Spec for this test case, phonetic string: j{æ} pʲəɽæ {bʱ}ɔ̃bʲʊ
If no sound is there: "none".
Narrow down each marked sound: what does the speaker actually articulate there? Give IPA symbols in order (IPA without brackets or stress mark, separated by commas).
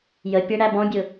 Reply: ə, b